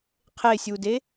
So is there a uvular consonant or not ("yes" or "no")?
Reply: yes